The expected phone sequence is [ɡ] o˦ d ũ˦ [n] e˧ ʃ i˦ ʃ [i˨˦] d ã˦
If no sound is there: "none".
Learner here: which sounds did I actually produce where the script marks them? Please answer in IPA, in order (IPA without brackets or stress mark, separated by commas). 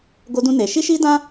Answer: ɡ, n, i˦